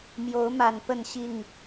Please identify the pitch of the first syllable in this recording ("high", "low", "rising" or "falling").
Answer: rising